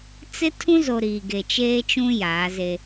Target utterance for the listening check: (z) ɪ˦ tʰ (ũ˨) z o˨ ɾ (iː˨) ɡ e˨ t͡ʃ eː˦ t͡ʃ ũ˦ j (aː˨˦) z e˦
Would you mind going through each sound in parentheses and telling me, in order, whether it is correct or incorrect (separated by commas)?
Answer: incorrect, incorrect, correct, correct